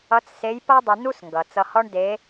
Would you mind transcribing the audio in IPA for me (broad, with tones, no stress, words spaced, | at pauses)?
ʌ˧˥t͡sse˧˥j pʌ˥dˤə˧nu˥sŋɡʌ˩ t͡sʌ˧hɔ˥ɳde˧˥